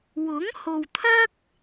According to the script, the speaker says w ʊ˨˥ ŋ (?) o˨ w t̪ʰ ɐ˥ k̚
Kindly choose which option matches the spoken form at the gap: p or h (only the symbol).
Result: h